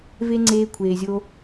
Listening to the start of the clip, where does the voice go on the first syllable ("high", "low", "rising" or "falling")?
high